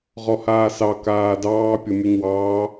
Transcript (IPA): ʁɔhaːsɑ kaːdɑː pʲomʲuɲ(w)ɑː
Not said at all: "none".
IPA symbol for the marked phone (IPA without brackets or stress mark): w